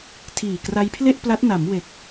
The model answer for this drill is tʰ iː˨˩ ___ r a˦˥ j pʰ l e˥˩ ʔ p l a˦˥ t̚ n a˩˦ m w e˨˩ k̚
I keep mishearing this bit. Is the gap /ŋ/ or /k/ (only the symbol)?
k